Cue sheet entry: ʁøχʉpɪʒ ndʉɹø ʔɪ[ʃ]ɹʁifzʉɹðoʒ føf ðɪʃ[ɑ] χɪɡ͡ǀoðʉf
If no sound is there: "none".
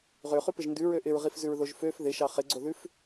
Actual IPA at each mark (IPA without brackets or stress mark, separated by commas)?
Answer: none, ɑ